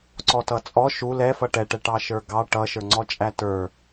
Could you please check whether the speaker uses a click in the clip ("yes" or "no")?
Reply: yes